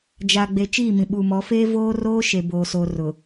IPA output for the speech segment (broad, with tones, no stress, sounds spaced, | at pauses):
d͡ʒ a˨ ɡ͡b e˨ t͡ʃ iː˦˨ m ĩ˨ ɓ u˨ m ɔ˨˦ f eː˦ v oː˦ r oː˦ ʃ e˨ b oː˨ s oː˨ r ʊ˨